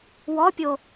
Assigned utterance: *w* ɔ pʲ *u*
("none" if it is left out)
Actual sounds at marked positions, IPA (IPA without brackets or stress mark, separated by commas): w, o